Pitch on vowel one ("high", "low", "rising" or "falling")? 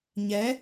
rising